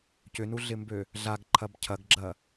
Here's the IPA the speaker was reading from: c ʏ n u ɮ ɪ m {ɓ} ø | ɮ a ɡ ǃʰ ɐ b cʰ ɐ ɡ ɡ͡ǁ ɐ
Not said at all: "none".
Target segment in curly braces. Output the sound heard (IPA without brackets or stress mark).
b